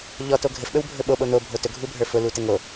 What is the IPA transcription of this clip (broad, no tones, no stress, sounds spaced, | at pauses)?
ʎ ɔ t o ɡʱ ɘ f ɓ ɵ w bʱ ɵ ɓ o ɓ o n̪ o bʱ o t ɵ ɡʱ u bʱ ə˞ f ʊ l u t ɘ ŋ o